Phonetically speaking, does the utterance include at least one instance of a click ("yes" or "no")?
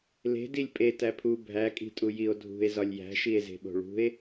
no